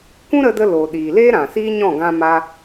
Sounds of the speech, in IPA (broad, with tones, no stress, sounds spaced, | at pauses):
kʷ ũ˦ ɾ ə˧ d ə˧ l oː˨ ɗ iː˨ l eː˦ ɾ ã˨ s iː˦ ɲ ɔ̃˦˨ ɡ ã˧ m aː˧